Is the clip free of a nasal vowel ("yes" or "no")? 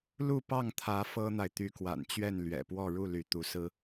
yes